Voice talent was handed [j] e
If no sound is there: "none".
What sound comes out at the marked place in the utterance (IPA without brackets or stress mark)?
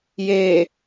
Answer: j